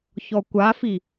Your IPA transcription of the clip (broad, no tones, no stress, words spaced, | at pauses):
çɔkʷafi